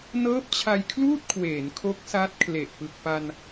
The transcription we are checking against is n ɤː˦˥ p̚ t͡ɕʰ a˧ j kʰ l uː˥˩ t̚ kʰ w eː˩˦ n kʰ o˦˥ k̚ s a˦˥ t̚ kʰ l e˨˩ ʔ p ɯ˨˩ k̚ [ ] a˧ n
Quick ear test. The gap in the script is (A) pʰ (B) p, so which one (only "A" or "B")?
B